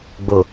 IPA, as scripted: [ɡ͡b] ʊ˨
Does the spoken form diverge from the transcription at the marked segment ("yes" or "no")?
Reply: no